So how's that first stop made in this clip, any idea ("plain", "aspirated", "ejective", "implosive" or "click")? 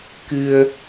plain